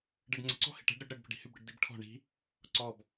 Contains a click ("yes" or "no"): yes